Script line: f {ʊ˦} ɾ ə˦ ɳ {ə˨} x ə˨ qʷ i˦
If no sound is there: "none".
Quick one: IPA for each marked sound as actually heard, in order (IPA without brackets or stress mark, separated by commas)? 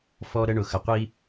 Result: ɔ˦, ʊ˨